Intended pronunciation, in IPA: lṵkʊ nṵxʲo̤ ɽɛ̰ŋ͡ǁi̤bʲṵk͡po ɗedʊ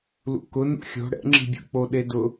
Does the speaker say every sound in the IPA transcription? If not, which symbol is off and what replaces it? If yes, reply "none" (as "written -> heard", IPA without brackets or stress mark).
none